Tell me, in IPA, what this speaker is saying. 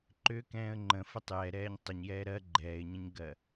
ǃ ʏ k ɛ̃ː ə̯ ŋ͡ǃ ə̃ f ə tˤ j ɛ ɾ ɛː ɲ tˤ ʏ ɲ j ɛː ɾ ɜ ɡ͡ǃ ɛː ɪ̯ ɲ ə̃ ɲ ɡ ɜ

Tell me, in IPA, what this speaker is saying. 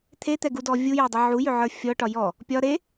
t̪ʰ e t̪ ɛ ɡ u d ɔ vʲ u j ɛ dˤ ə ʕ u j ʏ ʕ ə˞ fʲ ɔ ʈ ɒ j ɔ | pʲ ɒ ɾ e

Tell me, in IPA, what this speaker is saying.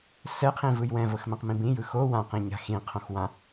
s ɛ qʰ ĩ v ɯ j w ɛ̃ v ɤ x m ɛ̃ q m ĩ b ĩ j ɯ x o w ã q ĩ ɲ a̤ x ĩ qʰ õ x w ã

